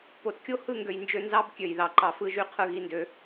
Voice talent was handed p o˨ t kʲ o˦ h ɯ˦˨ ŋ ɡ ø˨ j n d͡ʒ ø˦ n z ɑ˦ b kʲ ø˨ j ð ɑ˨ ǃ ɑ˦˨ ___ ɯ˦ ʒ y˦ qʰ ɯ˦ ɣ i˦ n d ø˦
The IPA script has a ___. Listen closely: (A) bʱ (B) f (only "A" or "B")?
B